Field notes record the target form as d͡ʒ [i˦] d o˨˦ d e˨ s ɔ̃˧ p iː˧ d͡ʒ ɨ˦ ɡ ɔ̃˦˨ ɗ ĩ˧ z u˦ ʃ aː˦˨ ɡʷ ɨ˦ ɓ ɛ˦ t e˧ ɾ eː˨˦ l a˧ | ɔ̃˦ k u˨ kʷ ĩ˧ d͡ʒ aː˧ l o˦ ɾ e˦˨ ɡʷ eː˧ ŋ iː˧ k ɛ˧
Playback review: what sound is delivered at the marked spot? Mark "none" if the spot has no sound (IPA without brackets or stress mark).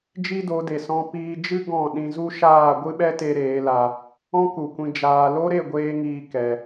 i˦